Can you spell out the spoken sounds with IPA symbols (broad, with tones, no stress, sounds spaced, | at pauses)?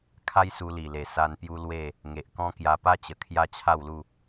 kʰ a˦ j s u˧ l i˨˩ l e˨˩ s a˧ n p j u˦ l w e˥˧ | ŋ e˨ ʔ k ɔ̃˦ k j a˧ p a˦ t͡ɕ ə˨˩ kʰ j a˦ t͡ɕʰ a˥˧ w l u˥˧